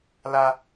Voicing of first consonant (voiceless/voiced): voiced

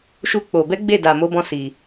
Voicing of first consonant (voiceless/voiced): voiceless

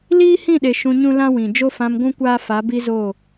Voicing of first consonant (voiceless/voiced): voiced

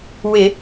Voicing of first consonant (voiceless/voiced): voiced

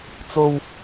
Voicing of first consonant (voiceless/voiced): voiceless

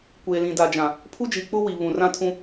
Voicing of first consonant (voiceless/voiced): voiceless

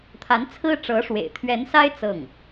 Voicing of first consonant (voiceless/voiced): voiceless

